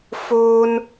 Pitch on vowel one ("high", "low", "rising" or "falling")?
high